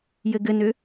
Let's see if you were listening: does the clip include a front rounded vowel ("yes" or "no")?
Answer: yes